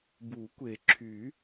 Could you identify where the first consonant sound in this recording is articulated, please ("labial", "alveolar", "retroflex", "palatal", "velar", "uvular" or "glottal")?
labial